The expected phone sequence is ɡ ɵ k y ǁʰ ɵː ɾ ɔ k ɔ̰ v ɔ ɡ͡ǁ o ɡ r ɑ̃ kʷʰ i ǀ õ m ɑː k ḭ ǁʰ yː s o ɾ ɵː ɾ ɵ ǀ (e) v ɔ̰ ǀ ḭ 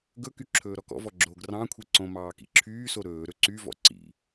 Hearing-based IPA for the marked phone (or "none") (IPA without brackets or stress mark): y